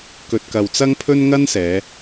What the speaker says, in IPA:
k ɵ˨ t̚ k ɐ˨ w t͡s ɐ˥ ŋ pʰ ɵ˥ n ŋ ɐ˥ n s ɛː˨˧

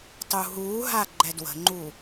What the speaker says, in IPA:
tˤ u ɦ uː ɦ a ɡ͡ǃ ɛ d w ə̤ ŋ͡ǃ u

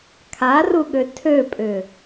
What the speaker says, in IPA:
kʰ a r u ɠ ø tʰ ø pʼ ʏ

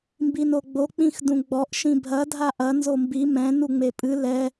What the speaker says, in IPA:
m b i n o ɡ͡b o k͡p ĩ x d ũ ɡ͡b ɔ ʔ ʃ ĩ bʱ ɐ dʱ a ʔ ɐ n z o m b i m ɛ̃ n u ŋ͡m e pʼ ɨ l ɛ

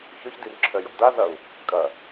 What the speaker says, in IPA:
ç œ ç d i r ǁʰ œ j ɔ̰ d a z ɐ u̯ | kʼ ɐ

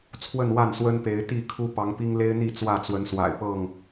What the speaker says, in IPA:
t͡sʰ w ə˥˨ n w a˥˨ n s w ə˦ n p e˨˦ ɪ̯ t̪ i˥˨ kʰ u˦ p ɑ˨˦ ŋ p i˦ ŋ l e˦ ɪ̯ n̪ i˥˨ t͡s w ä˥˨ t͡s w ə˨˦ n s w a̰˨˩ ɪ̯ p ɤ˥˨ ŋ

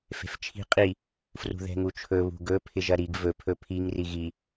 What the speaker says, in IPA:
f e̤ f t͡ʃʰ i̤ qʼ i | f r ṳ ð ɛ̤ ŋ u t͡ʃʰ ɵ β ṳ ɡ ɵ pʰ ɪ ʒ ɐ ɾ i ɡ v ɵ pʰ ɵ pʰ i ŋ r i ɣ i

